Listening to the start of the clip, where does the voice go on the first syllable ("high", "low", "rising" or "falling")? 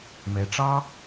low